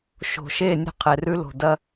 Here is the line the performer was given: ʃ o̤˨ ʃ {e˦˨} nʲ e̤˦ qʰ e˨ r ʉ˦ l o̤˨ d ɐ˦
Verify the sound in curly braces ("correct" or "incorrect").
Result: correct